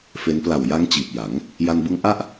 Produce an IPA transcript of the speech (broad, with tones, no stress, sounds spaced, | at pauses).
f e˦˥ n p l a˨˩ w j a˦˥ ŋ t͡ɕ iː˨˩ p̚ j a˩˦ ŋ | j a˧ n b ɯ˦˥ ŋ ʔ a˥˩ ʔ